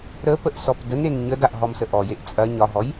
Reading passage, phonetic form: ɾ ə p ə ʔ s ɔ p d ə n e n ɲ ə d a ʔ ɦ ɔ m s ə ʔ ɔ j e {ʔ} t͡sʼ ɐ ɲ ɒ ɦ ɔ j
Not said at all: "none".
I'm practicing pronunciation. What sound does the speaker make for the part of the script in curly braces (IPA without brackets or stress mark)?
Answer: ʔ